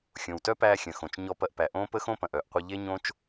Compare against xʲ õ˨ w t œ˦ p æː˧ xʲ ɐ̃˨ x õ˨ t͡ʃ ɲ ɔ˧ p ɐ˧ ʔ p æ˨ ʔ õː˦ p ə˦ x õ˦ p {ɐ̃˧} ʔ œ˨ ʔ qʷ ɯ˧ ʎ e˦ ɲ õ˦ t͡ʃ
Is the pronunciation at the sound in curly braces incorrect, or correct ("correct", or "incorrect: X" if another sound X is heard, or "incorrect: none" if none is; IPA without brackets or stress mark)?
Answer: incorrect: ɐ̃˨